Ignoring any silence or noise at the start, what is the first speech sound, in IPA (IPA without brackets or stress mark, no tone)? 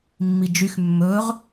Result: mː